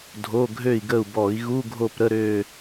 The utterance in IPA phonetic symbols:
dʱ o˧˥˧ ɡʱ ø˦˨ i̯ ɡ ə˦˨ u̯ b ɔ˧˩˧ i̯ ɣ u˧˥˧ ɡʱ o˦˨ p ɾ ə˧˥˧ ɾ ø˦˨

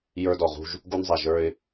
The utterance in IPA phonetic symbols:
j ə˞˧ d ɔ˩ ʁ ṳ˧ ʒ | ɡ u˧ n zˤ æ˩ ʒ ə˞˧ ɪ̯

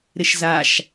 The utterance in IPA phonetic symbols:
ɾ ɪ ʃ z a ʃ

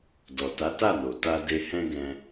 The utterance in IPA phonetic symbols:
d ɔ˨ t a˨˦ t a˦˨ n o˨ t a˧ d e˧ h ɛ̃˦ ɡ ɛ̃˧

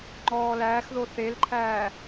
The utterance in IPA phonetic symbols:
ŋ͡ǃ ɔː l æː x ð o θ e l ǃʰ æː

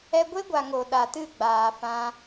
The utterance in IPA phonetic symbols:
ɛ˧ ɡʷ e˦ ɡʷ a˨ ŋ o˨ ɗ a˨ t ɨ˦˨ ɡ͡b aː˨ f ã˧

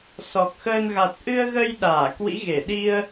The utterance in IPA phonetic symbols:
s ɔ˨˩ k̚ x əː˧ n ɣ a˨˩ t̚ ʔ ɨ˧ ə̯ ɣ ə˧ j ɗ aː˧˩ k w ḭ˧˥ ɣ e˧˩ ɗ i˧ ə̯

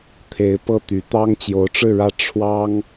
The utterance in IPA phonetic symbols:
t̪ʰ e˧˥ ɪ̯ p ɤ˥˩ t̪ y˧˥ t̪ ɑ˥ ŋ t͡ɕ j o˧˥ ʊ̯ ʈ͡ʂ ɻ̩˥˧ ɻ ä˥˩ ʈ͡ʂʰ w ɑ˥ ŋ

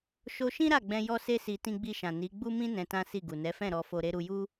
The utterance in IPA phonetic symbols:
ʃ o˧ ʃ ĩ˦ ɾ a˦˨ ɡ͡b ɛ̃˧ j ɔ˦ s e˦ s i˧ t ĩ˧ ɡ͡b i˧ ʃ ã˨ n i˨˦ ɡ͡b u˦ m ĩ˦ n ɛ̃˧ t ã˦ s i˦˨ ɡ u˨ n ɛ˨˦ f ɛ̃˦˨ ɾ ɔ˧ f o˧ ɾ e˦ ɾ u˧ j u˦

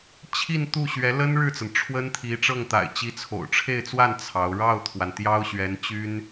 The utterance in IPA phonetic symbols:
t͡ɕʰ i˥˧ n t̪ u˥˩ ɕ ɥ ɛ˧˥ l ə˥ n ɻ ɻ̩˥˩ t͡s ə˩ n ʈ͡ʂʰ w ə˥ n t̪ʰ i˧˥ ʈ͡ʂ ɤ˥˩ ŋ t̪ a̰˨˩ ɪ̯ t͡ɕ i˧˥ t͡sʰ o̰˨˩ ʊ̯ ʈ͡ʂʰ e˥˧ ɪ̯ t͡s w a˥˩ n t͡sʰ ɑ˧˥ ʊ̯ ɻ ɑ˥˩ ʊ̯ t̪ʰ w a˩ n t̪ j ɑ˥ ʊ̯ ɕ ɥ ɛ˧˥ n t͡ɕ y˥ n

